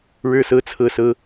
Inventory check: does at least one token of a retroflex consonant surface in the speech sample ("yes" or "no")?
yes